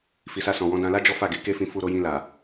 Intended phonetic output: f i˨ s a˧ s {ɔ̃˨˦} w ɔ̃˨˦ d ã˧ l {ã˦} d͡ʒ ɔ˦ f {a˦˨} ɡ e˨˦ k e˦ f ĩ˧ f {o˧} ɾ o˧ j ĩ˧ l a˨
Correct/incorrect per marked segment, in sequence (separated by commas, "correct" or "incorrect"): incorrect, incorrect, correct, incorrect